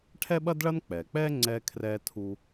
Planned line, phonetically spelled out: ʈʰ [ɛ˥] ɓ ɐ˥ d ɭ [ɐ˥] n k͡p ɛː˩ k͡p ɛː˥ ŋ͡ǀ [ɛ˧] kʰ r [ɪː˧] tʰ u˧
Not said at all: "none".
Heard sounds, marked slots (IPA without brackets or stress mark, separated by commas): ɛ˥, ɐ˥, ɛː˧, ɛː˧